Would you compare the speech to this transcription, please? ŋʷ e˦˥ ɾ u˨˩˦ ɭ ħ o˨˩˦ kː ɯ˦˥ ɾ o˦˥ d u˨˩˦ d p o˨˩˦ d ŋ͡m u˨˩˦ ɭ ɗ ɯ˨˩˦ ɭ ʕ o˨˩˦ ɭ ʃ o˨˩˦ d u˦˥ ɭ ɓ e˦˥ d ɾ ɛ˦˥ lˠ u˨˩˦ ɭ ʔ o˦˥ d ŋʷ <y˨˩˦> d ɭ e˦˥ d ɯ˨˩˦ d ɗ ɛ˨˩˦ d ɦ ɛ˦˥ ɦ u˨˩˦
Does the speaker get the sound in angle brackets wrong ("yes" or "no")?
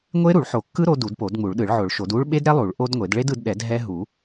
yes